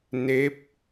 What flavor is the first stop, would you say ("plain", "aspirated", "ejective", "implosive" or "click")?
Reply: plain